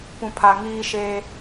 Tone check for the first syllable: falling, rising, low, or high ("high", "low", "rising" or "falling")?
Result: low